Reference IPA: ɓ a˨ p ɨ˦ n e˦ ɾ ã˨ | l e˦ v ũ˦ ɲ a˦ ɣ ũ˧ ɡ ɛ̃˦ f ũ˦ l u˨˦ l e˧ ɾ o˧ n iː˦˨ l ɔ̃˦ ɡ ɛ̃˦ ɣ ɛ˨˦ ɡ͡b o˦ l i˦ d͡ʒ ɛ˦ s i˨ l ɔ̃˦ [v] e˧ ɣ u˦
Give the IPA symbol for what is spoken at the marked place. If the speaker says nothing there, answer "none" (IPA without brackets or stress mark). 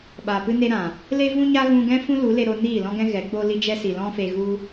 f